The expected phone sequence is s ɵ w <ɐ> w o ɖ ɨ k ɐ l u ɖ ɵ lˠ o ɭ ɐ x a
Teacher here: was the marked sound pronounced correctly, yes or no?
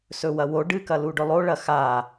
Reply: yes